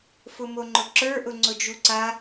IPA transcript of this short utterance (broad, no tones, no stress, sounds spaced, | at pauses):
f ʊ m o ŋ͡ǃ ʊ ǁ ə˞ ʔ ʊ ŋ͡ǀ ʊ d͡ʒ u ǀ a